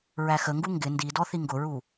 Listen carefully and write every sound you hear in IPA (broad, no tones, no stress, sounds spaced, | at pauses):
ɹ æ x ə ŋ ɡ u ŋ ɡ ɪ n d i d ɔ θ i ŋ ɡ ʊ ɹ u